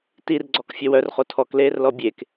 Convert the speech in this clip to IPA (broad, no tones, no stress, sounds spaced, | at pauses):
t i r ɡ͡ǀ ɔ k fʲ œ w œ r χ o tʰ ɔ k l eː r l ɔ bʲ e k